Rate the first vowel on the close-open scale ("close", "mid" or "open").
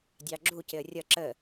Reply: open